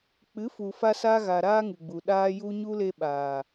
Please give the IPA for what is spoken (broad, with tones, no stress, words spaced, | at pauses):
k͡pɨ˨˦fu˨fa˧sa˧ ɣa˨ ɾaː˦ŋɨ˨ɡ͡bu˨ ɗaː˧ju˧ɲu˦ le˧ɓaː˨